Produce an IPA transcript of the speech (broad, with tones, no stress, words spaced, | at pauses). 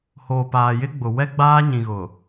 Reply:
hoː˨paː˨jɪ˦ɡ͡bʊ˨ wɛ˦ɡ͡baː˦ ɲĩ˨ɣʊ˨